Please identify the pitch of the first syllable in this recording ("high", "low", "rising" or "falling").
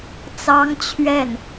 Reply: high